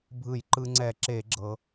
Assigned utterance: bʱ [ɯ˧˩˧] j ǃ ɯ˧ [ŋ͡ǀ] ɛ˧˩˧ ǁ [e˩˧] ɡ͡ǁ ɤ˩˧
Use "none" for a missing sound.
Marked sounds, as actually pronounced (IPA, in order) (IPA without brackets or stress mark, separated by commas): ɯ˧˩˧, ŋ͡ǀ, e˧˩˧